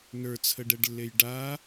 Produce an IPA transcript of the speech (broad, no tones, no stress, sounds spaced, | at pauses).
n ə˞ t͡sʰ ə ɖ ɛ ɖ lː e j ɖ a